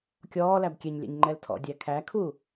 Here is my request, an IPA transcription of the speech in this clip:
kʲɔːlæb kʲɛɲlʲɛ̰ɲ ŋ͡ǃɛltʰɔ̰ dʲækʰækʰu

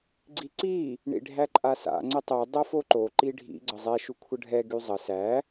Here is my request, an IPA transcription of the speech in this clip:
ɡ͡ǀiǀi | ɳḭɖʱæǃʼasa̰ ŋ͡ǀətˤɛ dˤɤfoǃo ǃiɖʱḭ ɡ͡ǀəzˤɛ ʃukʷʰəɖʱɛ ɡyzˤə sæ

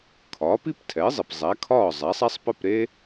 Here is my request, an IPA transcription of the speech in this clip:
kʰɒː˩˥pi˥ptʰɛ˩˥ɪ̯zˤi˩p zˤæ˩˥kʰɒː˥˩ zˤæ˩˥sˤæ˥sˤ pə˥˩pɾe˥

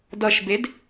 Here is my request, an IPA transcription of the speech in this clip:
dʌʃbed

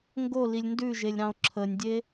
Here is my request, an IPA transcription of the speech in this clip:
ŋɡolilʲ ndʉʒelʲ ɾɑ̃o̯ǁʰənʲdʲe

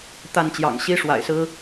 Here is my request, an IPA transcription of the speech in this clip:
t̪a˥˩nt͡ɕjɑ̰˨˩ŋ ɕi˥ʂwa̰˨˩ɪ̯sɹ̩˥

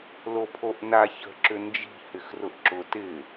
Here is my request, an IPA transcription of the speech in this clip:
lopʰoʔna çə̤ǁʏ nd͡ʒi̤hɪx rʊʔǁʊ tɪ

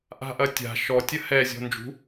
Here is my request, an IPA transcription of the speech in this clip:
ʔa̤ʔɐtʲa̤ ʃɔtʲɐ hɛ zʲɔ̤nd͡ʒṳ

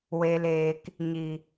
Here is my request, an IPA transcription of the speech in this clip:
we˨leː˨k | ɲi˨

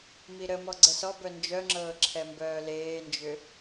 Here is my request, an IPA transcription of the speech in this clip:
miɾəmɔ ɡ͡ǀəsɔbœ nd͡ʒœŋ͡ǁɤː ǁʰɛmbœːleːnd͡ʒʏ

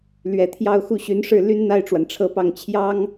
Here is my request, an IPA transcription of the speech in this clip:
lɥɛ˨˩t̪ʰjɑ˥˧ʊ̯xu˥˩ɕy˧˥n ʂɻ̩˥˩ ly˥nn̪a˥˩ɪ̯ʈ͡ʂwa˩n ʈ͡ʂʰɤ˥˧pɑ˥˩ŋ t͡ɕʰjɑ˥ŋ

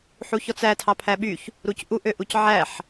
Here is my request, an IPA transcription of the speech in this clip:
ħuçɔt͡sæ tʰɑpʰæɓyç | ɾucʔu ʔøʔucʕæħ

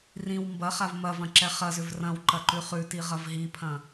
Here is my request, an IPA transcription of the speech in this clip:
rĩw mbɐχav mɐvɐ̃ǁɛ χɐzʏv rɐ̃wǃɐǃʉ χʉtiʁɐv ɦipʰɐ̃

